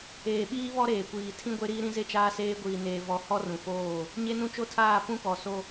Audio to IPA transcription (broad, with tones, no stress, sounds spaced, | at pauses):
eː˨ ɓ iː˦ β ɔ˦ ɾ eː˨ kʷ iː˨ tʰ ĩ˦ ɡʷ e˦ ɾ iː˦ ɾ ĩ˦ z e˦ t͡ʃ aː˦ s eː˦ ɡʷ iː˨ n eː˨ v ɔ˨˦ h ɔ˦ r ũ˨ f oː˦˨ | ɲ e˦ n ũ˦ t͡ʃ o˦ tʰ aː˦˨ p ũ˦ k ɔ˨ s o˦